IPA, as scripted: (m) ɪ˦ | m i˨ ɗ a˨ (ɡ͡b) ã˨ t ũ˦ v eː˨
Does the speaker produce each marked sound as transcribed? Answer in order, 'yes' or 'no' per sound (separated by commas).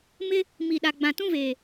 yes, yes